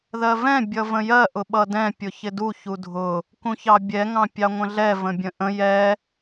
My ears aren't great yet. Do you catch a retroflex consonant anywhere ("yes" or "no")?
no